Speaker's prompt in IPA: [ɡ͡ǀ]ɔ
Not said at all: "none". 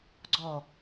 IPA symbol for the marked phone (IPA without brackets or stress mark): ɡ͡ǀ